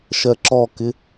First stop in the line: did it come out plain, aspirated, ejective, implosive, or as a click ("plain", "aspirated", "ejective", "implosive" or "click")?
click